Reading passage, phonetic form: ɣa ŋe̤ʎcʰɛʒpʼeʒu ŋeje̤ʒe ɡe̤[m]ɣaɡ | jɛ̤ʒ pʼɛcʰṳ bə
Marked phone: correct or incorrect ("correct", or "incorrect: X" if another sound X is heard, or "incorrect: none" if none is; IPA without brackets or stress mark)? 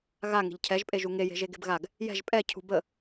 incorrect: b